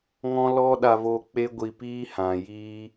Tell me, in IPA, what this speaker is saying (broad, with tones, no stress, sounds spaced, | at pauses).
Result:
ŋ ɔ̃˦ l ɔ˦ ɗ a˧ v o˧ k͡p e˦ ɡʷ i˧ p iː˦ h ã˨ j iː˦